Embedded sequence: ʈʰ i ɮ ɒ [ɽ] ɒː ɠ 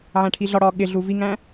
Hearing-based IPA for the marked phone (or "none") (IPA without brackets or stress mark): ɽ